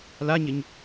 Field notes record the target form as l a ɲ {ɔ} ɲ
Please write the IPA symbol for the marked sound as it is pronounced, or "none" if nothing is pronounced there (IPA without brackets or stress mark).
ə